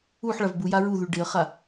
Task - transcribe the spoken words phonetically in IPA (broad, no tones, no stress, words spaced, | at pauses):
uħ ɭavbuja ɹuðʉ ɖɪə̯χa